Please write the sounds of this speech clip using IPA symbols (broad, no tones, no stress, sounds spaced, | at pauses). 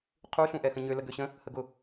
qʰ u ɬ ũ ʔ ɛ x ə̃ ɲ ø l ə ɡ ø ɕ ə̃ | h ə ɡ ʊ